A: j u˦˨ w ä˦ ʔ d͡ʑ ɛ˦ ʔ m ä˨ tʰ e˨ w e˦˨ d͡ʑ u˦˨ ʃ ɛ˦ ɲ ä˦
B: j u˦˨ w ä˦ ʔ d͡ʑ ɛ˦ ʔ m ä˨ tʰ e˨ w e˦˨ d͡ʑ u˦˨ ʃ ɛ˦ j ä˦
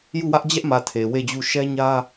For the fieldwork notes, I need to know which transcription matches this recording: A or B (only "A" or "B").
A